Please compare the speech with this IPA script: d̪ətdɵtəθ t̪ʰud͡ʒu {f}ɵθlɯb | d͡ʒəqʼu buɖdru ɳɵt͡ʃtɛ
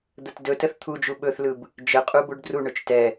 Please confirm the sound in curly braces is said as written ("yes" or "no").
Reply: no